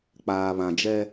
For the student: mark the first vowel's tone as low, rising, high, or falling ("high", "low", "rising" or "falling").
low